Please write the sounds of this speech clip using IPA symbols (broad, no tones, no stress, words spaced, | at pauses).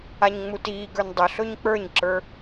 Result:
aɲŋ͡mutiːɡə˞n dˤʏɬɵɲ k͡pə˞ɲǁə˞